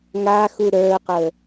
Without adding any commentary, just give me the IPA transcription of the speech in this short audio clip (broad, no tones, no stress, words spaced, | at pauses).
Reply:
ŋaxu ɾə˞qə